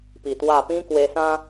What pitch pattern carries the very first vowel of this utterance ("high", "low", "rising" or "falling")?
low